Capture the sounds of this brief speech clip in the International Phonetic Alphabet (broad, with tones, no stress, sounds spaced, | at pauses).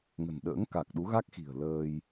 ŋ ə̤˨˩ n ɗ ə̰ː˧˥ ŋ k a˨˩ k̚ ɗ u˨˦ ɣ a˦˥ k̚ x i̤˨˩ ə̯ l əː˧ j